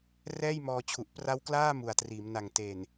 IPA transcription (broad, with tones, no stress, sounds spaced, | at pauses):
r ɛː˥˩ j m ɔː˧ t͡ɕʰ u˨˩ ʔ p r a˦˥ w k l aː˥˩ m u˨˩ a̯ t r iː˩˦ m n a˨˩ ŋ t e˨˩ n